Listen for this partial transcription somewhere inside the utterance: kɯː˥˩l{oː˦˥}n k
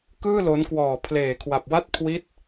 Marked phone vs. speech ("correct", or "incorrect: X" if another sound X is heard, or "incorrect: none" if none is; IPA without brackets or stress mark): incorrect: o˦˥